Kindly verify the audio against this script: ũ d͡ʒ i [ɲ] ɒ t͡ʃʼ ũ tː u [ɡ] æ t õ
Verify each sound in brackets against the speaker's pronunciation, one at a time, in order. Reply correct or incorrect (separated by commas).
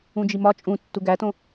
incorrect, correct